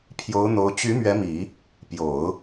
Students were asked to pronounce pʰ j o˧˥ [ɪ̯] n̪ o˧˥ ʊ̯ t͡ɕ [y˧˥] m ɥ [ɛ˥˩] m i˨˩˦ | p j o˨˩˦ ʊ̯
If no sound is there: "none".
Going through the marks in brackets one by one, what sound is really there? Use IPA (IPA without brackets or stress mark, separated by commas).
ʊ̯, y˧˥, ɛ˧˥